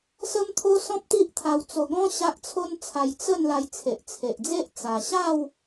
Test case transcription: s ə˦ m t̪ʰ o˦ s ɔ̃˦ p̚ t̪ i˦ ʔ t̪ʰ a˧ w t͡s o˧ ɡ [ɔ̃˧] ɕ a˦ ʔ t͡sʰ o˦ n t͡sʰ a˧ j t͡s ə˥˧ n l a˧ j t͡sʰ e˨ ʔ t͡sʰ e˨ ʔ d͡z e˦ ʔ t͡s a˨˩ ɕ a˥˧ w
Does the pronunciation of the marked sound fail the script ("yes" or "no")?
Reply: yes